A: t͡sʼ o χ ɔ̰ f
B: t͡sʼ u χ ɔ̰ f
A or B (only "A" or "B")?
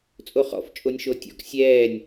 A